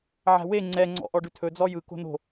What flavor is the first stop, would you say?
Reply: click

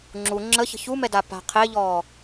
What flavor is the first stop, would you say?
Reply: click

